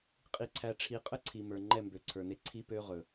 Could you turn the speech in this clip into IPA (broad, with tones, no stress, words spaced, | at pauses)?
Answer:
qʼi˨ǀʰæ˨ ʈ͡ʂʰi˨qʼə˦ ǀʰi˨mə˞˨ ŋ͡ǃɛ˦˨mbø˨ǀʰə˞˨ne˦ ǀʰi˦pø˦ʁɵ˨